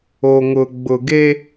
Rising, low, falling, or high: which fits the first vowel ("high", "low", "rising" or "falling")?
low